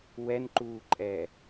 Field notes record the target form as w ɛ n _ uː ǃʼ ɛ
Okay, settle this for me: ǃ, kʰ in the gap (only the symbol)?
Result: ǃ